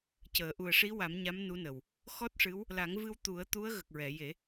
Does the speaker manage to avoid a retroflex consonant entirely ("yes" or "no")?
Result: no